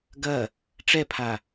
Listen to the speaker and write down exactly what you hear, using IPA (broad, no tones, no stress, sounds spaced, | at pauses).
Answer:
ɡ ɐ | ʈ͡ʂ ɛ pʰ a